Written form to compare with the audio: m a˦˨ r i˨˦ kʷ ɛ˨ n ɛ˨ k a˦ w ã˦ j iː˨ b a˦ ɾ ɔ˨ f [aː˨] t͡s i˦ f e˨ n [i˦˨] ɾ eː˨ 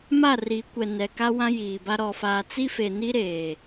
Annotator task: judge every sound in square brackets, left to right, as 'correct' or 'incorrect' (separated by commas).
correct, incorrect